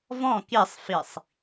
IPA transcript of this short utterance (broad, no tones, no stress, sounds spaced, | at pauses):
v ɔ̃ k i sˤ f i sˤ